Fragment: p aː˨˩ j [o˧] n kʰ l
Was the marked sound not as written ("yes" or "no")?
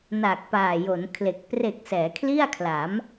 yes